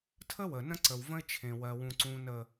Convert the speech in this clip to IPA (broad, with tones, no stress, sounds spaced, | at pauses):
tʰ ə˦ w ə˨ n ə̃˦ ǀ ə˨ w v ə̃˦ ɪ̯ t͡ʃʰ ẽ˨ w ɜ˨ w ũ˨ ǀ ũ˨ n ə˨